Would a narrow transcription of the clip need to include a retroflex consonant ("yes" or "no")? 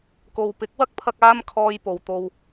no